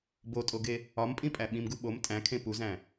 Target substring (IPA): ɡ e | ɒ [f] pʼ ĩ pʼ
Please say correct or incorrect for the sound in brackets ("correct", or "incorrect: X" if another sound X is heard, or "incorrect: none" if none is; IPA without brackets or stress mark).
incorrect: m